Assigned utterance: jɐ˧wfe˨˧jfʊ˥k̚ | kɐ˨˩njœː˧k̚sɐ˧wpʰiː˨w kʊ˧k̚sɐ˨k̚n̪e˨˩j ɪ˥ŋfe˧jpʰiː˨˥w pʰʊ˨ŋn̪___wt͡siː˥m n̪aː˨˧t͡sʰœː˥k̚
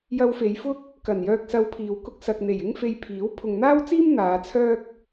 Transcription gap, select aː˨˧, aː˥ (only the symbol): aː˥